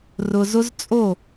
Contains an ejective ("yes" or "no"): yes